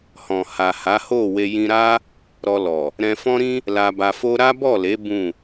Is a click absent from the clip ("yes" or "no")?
yes